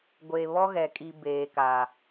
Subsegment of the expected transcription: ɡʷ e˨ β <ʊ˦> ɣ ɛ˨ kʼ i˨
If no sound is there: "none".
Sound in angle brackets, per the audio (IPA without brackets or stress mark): ɔ˦